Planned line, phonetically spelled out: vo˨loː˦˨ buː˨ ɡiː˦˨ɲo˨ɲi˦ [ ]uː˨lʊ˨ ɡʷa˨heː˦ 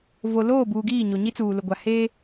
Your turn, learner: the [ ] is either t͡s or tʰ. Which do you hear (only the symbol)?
t͡s